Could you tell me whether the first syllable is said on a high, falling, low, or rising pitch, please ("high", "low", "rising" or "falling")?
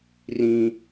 high